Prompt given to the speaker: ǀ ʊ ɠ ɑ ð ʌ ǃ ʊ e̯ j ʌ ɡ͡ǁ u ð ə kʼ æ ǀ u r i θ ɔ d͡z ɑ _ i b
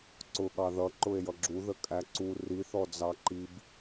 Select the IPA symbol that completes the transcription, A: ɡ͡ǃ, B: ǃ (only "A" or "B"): B